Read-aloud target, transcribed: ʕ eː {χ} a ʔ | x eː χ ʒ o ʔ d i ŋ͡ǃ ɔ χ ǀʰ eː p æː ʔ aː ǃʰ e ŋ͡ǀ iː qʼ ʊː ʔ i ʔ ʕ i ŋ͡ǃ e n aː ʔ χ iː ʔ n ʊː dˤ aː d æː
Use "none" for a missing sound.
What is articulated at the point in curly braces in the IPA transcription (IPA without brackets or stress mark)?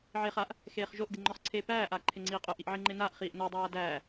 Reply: χ